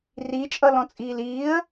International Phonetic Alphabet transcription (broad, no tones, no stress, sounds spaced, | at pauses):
r i t͡ʃʼ ʌ l ɔ̃ t͡sʼ iː l iː ə̯